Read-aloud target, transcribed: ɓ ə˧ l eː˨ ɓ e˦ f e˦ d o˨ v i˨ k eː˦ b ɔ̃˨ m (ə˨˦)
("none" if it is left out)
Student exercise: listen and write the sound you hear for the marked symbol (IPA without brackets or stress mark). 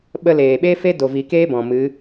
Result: ɨ˨˦